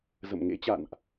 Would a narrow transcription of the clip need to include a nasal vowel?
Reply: no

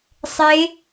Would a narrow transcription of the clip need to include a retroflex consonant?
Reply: no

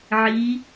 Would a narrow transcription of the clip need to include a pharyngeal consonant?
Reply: yes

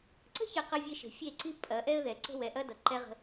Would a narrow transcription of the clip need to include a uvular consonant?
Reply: yes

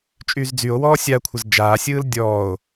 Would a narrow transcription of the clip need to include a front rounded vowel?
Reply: yes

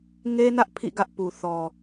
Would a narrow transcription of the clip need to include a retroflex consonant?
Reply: no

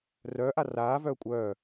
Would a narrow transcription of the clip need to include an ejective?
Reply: yes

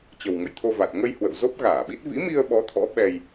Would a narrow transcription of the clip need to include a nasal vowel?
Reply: no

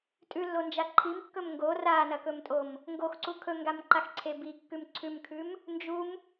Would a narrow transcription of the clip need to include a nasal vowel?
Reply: no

